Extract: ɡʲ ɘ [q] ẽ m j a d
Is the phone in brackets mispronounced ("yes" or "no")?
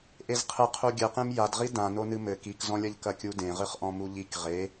no